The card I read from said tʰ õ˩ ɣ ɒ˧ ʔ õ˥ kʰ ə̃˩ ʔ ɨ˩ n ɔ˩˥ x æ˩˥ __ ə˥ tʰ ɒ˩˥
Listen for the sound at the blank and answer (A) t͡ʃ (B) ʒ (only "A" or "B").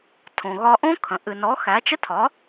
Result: A